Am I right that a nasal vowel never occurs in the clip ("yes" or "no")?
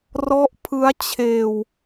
yes